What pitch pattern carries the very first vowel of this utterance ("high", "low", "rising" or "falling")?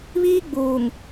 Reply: high